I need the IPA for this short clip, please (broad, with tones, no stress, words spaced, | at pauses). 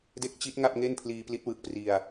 de˦˥k̚t͡ɕi˦˥t̚ ŋa˥˩p̚ŋe˥˩npʰliː˧ pli˦˥t̚wɯ˨˩k̚pri˧a̯